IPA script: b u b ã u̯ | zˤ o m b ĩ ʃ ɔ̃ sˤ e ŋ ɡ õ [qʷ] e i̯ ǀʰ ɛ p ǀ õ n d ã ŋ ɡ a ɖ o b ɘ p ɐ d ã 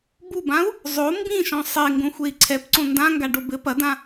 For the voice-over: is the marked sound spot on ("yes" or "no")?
no